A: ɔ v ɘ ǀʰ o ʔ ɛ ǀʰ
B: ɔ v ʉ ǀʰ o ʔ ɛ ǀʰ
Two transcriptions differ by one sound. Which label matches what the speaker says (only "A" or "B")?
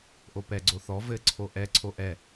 A